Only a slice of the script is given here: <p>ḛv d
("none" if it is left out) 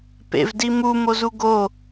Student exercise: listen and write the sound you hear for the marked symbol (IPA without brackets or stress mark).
p